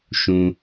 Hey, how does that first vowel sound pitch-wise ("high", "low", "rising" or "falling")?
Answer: low